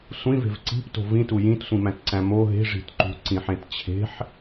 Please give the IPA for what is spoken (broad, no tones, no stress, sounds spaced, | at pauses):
sʷ ĩ v e̤ v ǀ i̤ p t o̤ v ĩ t u j ĩ t sʷ ĩ m æ̃ t ǀ æ̃ m o ɦ e̤ ʐ i̤ t ǃ ṳ ǀ ĩ ħ ẽ t t͡ɕʰ e̤ ħ